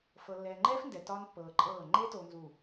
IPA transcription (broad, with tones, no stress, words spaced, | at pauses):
fɤ˨lːɛː˨ŋ͡ǃɛː˦fndɛ˨ tɒː˦npːɤː˨ǃʼɤː˦˨ ŋ͡ǃe˦to˨nzu˨